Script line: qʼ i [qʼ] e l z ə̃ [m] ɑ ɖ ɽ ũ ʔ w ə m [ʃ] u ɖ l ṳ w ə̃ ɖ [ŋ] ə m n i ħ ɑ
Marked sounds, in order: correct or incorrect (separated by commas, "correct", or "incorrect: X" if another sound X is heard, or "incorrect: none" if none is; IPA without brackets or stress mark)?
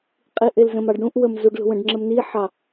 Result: incorrect: ʔ, correct, incorrect: z, incorrect: ŋ͡ǁ